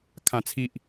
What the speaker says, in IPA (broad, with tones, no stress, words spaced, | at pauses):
kʰã˨˩t͡sʰi˨ʔ